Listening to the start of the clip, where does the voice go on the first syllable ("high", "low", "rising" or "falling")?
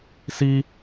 high